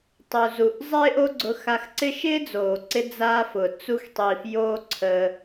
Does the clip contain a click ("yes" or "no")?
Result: yes